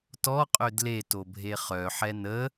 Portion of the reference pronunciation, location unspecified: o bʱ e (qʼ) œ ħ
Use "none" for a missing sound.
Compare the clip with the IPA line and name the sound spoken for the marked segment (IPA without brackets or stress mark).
χ